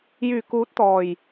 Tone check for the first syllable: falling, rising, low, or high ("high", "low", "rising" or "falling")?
low